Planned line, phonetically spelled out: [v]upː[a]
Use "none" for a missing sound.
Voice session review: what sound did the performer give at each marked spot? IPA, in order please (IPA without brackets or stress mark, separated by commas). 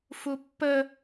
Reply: f, ə